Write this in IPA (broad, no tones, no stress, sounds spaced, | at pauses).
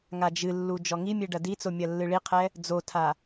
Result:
ŋ a d͡ʒ ɨ lː u d͡ʒ ɔ ŋ i mʲ e ɖ ɐ d i t͡s o mʲ ɐ lː ɨ ɭ i qʰ ɛ | d͡z o tʰ a